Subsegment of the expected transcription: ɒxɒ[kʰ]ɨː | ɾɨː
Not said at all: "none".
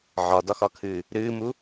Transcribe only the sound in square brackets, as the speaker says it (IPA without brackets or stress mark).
kʰ